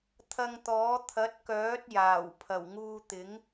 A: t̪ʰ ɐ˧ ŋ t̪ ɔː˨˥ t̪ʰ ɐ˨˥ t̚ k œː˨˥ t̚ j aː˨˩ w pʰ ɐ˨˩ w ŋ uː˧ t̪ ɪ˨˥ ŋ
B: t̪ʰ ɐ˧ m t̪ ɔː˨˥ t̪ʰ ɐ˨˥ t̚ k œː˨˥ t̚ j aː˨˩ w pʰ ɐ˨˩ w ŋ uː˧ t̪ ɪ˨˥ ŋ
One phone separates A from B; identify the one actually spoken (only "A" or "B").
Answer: A